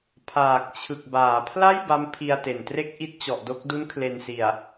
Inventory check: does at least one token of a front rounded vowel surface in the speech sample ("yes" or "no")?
no